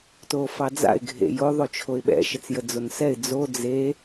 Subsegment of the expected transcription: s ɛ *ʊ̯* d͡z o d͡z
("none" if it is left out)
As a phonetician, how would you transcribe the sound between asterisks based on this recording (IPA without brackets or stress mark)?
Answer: ɪ̯